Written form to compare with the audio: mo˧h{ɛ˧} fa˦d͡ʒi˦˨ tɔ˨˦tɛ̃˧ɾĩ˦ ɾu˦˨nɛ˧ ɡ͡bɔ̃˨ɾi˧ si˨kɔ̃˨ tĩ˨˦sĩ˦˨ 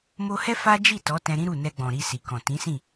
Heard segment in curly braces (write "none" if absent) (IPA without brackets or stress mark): ɛ˦